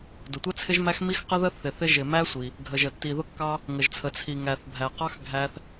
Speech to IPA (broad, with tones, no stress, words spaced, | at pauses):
dʊ˩tʷə˧t͡sʰɪ˧ʒmæ˧x mi˧x qə˧ðə˧ θɪ˩ θɪ˧ ʒɪ˩mæ˧ sʷi˩ | ɡʱə˩ʒə˩ tːi˩ðʊ˧kːɑ˧ | ŋə˩ʒt͡sʰə˩ t͡sʰi˩ ŋæ˩θbʱæ˩qɑ˧x ɡʱæ˧θ